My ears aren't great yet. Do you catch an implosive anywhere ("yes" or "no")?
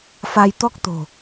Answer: no